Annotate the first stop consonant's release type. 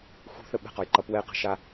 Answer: implosive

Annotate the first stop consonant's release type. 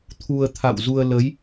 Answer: aspirated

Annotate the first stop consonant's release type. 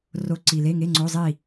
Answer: click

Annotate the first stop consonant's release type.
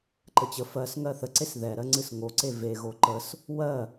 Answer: click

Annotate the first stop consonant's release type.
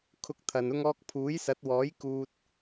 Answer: aspirated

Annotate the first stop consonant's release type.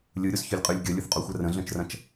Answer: ejective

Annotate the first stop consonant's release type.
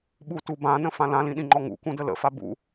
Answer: implosive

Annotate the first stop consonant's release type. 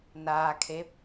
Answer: aspirated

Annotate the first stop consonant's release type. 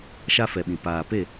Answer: implosive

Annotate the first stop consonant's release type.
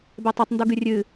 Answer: plain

